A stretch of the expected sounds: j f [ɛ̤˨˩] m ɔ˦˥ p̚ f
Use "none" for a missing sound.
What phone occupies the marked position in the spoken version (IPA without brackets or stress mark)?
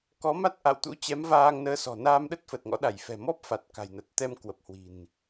ɛ̤˨˩